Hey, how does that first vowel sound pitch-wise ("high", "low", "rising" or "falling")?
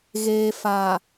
low